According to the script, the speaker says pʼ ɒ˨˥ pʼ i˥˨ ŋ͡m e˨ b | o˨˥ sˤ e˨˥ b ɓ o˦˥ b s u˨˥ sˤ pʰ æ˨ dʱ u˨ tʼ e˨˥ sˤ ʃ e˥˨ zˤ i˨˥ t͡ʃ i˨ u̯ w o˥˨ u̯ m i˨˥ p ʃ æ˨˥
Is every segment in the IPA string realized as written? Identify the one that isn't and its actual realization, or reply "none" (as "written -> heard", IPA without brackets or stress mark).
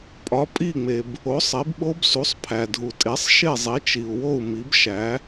p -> b